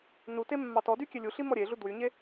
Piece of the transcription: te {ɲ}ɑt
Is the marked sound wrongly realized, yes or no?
yes